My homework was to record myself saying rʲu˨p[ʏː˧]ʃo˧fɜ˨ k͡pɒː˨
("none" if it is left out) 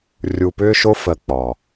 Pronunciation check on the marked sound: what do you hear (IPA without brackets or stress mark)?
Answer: ʏː˧